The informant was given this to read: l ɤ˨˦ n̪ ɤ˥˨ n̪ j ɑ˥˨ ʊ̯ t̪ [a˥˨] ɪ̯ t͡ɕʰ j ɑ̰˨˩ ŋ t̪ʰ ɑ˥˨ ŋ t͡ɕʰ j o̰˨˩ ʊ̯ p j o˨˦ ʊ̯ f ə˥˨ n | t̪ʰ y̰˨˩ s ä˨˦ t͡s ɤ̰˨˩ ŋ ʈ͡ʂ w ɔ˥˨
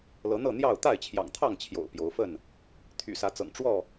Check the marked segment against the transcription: correct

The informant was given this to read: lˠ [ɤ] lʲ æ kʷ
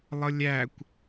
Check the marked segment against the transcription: correct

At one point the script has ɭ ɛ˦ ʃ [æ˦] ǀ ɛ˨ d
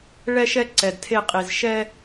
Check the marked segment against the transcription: incorrect: ɛ˦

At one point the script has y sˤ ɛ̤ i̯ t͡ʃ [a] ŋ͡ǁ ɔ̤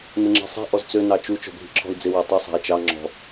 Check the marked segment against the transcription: incorrect: ɑ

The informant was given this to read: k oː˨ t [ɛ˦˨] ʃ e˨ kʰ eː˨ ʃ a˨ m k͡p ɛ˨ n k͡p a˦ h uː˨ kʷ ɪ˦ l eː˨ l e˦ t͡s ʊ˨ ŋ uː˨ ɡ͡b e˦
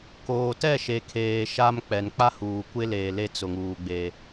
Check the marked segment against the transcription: correct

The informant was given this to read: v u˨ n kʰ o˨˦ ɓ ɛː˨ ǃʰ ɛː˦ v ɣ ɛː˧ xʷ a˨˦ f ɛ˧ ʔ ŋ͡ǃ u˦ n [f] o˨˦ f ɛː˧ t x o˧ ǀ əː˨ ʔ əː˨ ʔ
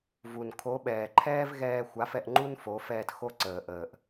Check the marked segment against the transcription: correct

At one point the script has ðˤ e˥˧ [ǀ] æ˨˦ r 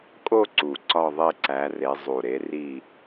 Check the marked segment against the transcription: correct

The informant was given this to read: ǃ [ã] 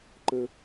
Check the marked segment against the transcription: incorrect: ə̃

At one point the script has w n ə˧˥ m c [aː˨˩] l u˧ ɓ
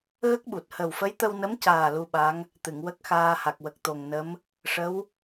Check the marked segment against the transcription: correct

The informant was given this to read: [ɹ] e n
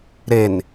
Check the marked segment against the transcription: incorrect: ɾ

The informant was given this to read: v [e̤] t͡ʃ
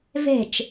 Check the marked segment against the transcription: correct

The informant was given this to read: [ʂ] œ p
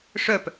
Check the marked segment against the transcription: correct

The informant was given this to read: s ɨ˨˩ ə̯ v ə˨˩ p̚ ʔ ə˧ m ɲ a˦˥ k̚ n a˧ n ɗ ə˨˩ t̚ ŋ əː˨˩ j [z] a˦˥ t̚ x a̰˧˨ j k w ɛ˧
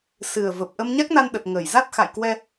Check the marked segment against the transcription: correct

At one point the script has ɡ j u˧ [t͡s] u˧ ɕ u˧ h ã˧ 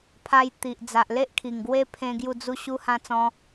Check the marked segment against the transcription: incorrect: d͡z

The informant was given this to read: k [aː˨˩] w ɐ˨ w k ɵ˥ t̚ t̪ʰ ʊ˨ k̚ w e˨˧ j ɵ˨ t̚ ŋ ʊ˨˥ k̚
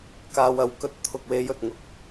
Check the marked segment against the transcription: incorrect: aː˧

